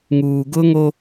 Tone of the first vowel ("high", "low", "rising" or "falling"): low